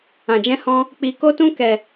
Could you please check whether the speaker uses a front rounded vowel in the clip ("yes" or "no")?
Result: no